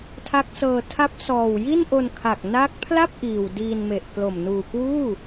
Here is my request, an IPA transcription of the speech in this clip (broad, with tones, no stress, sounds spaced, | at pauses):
tʰ a˦˥ k̚ s ɤː˧ tʰ a˦˥ p̚ s ɔː˨˩ w j i˥˩ n ʔ o˧ n kʰ a˨˩ k̚ n a˦˥ k̚ pʰ l a˥˩ p̚ ʔ iː˨˩ w d iː˧ n m e˨˩ ʔ k l o˨˩ m n uː˨˩ k w uː˥˩